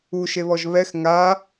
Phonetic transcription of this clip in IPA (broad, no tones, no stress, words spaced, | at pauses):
uʃeβɔʒ βɛx ŋa